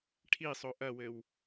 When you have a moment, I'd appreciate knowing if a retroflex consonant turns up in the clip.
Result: yes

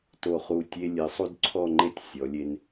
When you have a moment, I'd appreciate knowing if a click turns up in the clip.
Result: yes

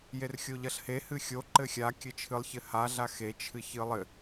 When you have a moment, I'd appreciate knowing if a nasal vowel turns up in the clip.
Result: no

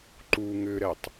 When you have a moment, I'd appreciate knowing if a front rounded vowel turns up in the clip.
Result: yes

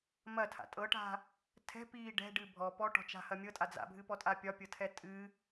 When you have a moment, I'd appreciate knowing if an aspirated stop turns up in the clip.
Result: yes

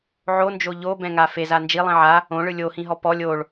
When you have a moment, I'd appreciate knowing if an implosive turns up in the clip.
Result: no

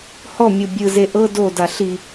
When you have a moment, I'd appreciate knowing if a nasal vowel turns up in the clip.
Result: no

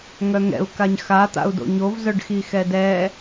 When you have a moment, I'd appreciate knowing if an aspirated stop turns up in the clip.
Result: no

